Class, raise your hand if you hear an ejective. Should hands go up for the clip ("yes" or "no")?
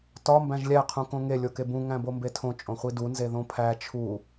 yes